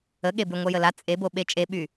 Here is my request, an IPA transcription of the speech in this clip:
ə ɠ e b y ŋʷ ɛ j ə l a t͡sʼ e b o ɓ e t͡ʃʼ e ɓ y

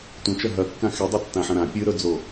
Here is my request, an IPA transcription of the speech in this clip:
tʷ ɐ̃ t͡ʃ ɐ ɦ ɐ kː ã x e dˤ ɵ tː ã ħ ɐ̃ ɾ ã pʲ ɨ ɾ ɵ d͡z o

